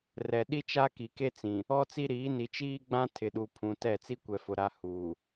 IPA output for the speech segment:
rɛ˨ɗi˦ t͡ʃa˦ki˨ke˦t͡sĩ˨ | ɔ˦t͡si˦ɾiː˨˦ ni˨t͡ʃiː˦ɡ͡bã˦ tʰɪ˨ɗu˨pʰũ˨ tɛ˦˨ t͡si˦kʷɛ˨fʊ˨ ɾa˦ huː˨

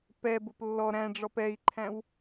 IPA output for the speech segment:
pɛbʊp lːɔ ɾæ̃ɖ͡ʐɔp ɛi̯ǃʰæ̃w

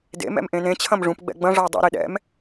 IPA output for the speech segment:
dḛ mɛ̰mʔẽnẽ t͡ɕʰɐ̃mʐũp ɡ͡bɛ̰ɡ͡bɐ̃ ʐʌwdˤḛ ɾeɗɛ̰m

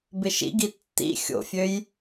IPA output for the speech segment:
bɪʃḭɡi tːḭ xʲo̰fʲøj

